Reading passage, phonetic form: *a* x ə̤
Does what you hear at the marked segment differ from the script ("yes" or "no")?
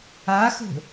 no